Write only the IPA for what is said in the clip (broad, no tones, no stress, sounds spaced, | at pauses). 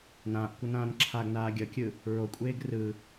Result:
n ãː ʔ kʷ ʌ n ãː n ǁʰ a ɡ n aː ɡʲ ʌ kʲ ɯ | ɹ o kʷʼ eː ɡ r ɯ